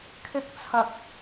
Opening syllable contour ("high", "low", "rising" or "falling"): high